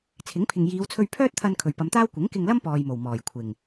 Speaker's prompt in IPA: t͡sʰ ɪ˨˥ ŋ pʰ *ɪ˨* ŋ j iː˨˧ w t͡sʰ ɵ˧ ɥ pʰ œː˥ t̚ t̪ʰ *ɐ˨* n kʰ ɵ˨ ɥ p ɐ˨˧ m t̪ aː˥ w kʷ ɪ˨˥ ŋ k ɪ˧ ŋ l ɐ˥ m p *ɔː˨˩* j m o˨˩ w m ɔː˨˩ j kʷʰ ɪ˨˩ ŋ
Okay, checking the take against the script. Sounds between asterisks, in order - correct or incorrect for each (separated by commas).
correct, incorrect, incorrect